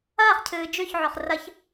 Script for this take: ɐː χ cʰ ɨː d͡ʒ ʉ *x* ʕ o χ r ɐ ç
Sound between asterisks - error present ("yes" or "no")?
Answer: yes